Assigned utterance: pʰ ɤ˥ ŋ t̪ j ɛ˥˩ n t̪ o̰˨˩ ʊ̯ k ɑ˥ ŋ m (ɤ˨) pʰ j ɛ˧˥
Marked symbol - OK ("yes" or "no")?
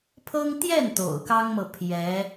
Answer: yes